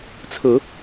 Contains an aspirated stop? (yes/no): yes